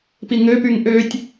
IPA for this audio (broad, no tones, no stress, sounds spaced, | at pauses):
p i ŋ ø p y ŋ ʔ ø tʲ